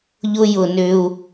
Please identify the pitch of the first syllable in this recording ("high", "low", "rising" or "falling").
high